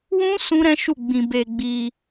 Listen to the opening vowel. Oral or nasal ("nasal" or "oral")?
nasal